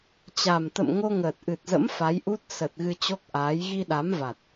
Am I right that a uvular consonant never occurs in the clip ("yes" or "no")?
yes